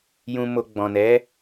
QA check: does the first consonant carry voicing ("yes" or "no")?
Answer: yes